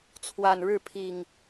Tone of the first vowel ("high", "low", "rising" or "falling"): low